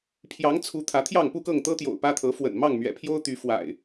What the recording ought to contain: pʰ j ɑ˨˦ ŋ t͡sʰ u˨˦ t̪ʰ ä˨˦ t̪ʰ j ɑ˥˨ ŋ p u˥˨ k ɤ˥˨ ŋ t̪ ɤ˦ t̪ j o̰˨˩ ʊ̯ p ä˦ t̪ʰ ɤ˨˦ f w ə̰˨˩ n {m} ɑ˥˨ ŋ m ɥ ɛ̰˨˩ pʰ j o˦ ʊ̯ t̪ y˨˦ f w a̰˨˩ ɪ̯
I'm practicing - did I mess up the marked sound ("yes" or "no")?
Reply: no